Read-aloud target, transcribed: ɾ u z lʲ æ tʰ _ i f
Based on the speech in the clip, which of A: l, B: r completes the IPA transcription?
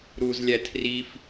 B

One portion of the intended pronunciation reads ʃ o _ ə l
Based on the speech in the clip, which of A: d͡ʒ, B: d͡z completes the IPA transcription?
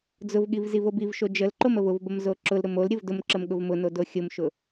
A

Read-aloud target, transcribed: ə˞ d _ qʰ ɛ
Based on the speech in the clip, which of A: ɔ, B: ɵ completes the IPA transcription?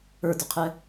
B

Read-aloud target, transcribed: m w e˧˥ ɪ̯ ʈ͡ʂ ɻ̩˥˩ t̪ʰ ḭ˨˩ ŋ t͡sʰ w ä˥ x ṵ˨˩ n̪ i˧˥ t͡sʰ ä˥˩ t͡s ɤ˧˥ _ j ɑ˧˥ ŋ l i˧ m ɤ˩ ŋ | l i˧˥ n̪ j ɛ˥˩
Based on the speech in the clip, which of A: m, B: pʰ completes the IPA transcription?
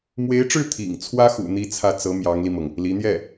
A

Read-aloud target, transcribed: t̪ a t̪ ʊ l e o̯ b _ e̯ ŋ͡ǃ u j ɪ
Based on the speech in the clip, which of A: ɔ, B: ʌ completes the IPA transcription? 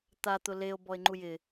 A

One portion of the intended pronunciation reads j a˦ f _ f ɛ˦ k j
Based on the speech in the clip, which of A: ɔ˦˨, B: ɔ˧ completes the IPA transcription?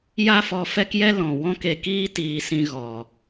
B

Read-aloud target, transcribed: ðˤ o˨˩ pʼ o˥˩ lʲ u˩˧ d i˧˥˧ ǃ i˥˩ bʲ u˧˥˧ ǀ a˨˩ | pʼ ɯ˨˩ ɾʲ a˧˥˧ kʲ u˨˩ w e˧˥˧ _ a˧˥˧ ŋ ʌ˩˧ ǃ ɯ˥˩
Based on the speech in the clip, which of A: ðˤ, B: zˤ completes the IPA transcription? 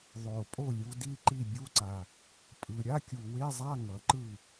B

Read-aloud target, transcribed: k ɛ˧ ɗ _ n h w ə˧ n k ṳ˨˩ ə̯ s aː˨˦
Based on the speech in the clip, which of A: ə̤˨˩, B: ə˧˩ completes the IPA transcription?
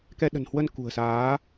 A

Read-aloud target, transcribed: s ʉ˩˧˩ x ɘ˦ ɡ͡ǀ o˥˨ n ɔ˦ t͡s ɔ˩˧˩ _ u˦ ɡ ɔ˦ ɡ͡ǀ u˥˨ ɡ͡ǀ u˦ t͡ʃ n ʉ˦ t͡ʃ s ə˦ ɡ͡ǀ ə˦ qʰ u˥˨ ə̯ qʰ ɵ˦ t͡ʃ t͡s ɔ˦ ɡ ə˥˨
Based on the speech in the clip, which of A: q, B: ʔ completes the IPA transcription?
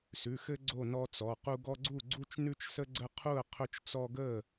A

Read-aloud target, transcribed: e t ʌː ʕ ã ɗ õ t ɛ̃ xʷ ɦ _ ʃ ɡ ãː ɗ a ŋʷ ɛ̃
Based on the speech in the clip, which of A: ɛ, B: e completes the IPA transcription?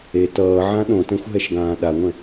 A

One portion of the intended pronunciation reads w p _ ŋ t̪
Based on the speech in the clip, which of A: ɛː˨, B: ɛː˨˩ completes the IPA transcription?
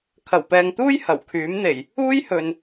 A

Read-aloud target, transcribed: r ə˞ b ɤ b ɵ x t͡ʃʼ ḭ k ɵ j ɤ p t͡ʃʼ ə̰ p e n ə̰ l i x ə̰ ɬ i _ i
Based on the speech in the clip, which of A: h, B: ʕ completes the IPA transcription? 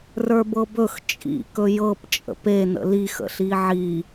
B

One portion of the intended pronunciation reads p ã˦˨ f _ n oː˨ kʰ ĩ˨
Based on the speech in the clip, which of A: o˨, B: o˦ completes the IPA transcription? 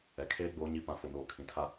A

